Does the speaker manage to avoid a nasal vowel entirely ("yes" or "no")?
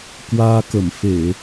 yes